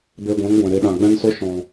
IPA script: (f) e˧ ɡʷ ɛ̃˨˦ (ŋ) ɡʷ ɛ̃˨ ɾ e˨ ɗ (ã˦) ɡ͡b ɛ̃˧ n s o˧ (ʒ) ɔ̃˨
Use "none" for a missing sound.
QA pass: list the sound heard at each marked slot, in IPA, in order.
b, ŋ, ã˨, ʃ

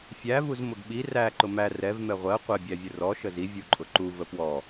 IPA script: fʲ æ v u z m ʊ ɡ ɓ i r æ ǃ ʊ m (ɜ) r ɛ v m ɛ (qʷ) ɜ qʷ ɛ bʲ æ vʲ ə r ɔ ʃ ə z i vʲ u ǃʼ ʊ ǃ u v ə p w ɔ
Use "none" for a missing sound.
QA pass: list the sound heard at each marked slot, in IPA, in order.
æ, ʁʷ

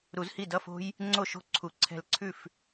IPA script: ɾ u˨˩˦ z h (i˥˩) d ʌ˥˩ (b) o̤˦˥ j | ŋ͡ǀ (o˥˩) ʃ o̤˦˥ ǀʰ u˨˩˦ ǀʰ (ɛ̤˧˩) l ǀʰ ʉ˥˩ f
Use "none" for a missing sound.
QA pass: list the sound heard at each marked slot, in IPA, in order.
i˥˩, f, o˥˩, ɛ̤˧˩

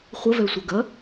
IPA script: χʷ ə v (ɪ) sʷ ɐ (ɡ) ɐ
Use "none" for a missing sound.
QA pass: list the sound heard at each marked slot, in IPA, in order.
ɛ, ɡ

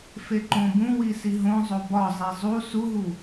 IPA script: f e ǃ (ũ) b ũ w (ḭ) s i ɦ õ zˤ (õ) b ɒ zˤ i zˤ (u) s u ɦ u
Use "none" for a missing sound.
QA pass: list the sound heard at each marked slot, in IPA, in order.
õ, i, o, u

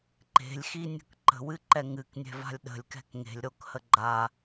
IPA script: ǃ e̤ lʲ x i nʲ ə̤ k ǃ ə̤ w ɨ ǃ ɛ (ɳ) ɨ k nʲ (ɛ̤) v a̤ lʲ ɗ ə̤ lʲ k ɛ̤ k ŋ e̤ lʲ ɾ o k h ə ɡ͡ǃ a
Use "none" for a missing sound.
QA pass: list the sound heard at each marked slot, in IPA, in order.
ŋ, ɛ̤

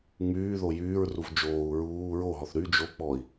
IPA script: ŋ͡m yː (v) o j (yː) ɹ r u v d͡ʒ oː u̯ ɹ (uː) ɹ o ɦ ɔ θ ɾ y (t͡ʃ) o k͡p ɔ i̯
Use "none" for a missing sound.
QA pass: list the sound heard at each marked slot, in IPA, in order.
ð, yː, uː, d͡ʒ

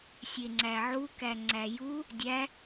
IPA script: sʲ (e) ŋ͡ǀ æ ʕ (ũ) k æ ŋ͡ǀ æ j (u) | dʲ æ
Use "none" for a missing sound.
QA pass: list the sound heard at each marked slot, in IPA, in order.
e, u, u

